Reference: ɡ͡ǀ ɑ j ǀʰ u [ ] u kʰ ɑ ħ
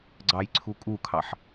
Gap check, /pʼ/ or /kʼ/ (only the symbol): kʼ